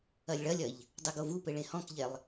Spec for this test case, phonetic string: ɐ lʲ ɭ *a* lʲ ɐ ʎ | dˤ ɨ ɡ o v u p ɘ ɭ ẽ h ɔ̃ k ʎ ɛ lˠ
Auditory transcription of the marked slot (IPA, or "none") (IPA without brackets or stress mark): ɐ